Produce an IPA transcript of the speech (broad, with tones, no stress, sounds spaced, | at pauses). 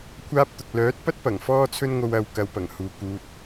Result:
kʷʰ aː˥ p̚ t̪ ʊ˨ k̚ l œː˨˥ t̚ p ɐ˥ t̚ p ɐ˨˩ ŋ f ɔː˥ t͡sʰ ɵ˥ n ŋ o˧ w ɐ˨ w k ɐ˧ w p ɐ˨˩ ŋ h uː˨ k uː˧ t̚